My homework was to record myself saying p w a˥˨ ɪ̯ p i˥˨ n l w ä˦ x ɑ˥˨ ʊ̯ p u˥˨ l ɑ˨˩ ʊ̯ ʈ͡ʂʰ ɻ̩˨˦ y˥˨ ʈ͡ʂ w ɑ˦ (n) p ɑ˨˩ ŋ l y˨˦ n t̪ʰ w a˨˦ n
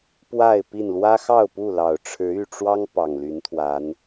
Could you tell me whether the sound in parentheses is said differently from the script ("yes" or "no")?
yes